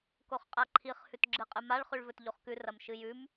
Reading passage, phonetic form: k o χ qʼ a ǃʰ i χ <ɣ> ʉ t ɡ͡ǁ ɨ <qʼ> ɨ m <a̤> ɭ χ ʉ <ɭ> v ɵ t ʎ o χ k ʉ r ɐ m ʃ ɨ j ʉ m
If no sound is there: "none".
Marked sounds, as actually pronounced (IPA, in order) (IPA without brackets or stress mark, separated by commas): h, qʼ, a, ɭ